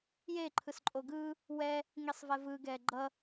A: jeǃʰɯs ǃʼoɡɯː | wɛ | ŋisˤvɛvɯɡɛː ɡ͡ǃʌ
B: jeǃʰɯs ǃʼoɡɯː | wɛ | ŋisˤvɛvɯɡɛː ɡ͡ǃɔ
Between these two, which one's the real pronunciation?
A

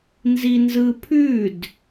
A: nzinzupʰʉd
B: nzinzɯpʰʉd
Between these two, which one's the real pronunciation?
B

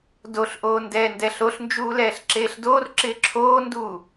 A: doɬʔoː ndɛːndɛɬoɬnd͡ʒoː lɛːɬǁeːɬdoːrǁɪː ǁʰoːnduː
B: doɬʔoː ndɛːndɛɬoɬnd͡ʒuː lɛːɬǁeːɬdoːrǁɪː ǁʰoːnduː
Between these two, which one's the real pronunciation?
B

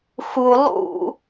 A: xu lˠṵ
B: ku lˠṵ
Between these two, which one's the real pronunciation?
A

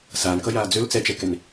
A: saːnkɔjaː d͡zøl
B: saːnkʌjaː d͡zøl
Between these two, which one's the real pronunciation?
B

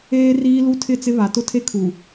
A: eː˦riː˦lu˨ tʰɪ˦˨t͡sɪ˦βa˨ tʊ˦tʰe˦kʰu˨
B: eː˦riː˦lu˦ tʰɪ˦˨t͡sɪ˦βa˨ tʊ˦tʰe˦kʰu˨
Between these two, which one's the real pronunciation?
B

